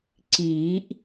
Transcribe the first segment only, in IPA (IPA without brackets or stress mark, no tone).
ǀ